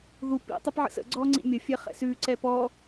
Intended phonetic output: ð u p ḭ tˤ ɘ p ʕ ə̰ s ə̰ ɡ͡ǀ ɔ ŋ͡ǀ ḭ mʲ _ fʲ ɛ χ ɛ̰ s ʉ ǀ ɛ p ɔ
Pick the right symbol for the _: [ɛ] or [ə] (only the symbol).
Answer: ə